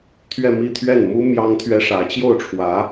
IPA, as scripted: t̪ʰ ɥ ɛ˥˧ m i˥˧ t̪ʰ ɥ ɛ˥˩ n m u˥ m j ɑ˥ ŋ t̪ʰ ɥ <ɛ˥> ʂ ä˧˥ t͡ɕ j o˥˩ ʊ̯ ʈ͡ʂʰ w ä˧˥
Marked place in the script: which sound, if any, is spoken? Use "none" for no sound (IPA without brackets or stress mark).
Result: ɛ˥